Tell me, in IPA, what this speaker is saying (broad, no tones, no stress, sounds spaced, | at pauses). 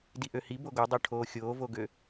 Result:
d i ʔ ø h i b o ɡ o dˤ o ʈʰ oː xʲ oː v o ɡ ø